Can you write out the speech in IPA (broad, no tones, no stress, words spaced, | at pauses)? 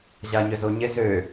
ʑaɲʏzoɲɪ zø